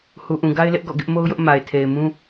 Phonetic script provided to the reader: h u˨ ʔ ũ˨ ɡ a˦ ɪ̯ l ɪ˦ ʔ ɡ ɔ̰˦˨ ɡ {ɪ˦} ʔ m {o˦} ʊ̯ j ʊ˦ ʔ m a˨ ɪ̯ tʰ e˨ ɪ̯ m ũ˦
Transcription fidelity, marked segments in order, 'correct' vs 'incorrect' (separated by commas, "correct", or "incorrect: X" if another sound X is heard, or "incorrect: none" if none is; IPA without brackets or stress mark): correct, correct